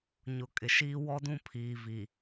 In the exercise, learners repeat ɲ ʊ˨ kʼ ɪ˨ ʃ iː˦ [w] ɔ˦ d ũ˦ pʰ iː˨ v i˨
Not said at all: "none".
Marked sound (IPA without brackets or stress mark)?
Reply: w